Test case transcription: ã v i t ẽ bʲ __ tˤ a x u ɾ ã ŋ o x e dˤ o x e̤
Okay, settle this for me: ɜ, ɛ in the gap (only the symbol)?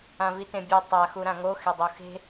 ɛ